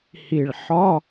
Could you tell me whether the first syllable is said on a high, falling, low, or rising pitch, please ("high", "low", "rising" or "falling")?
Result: low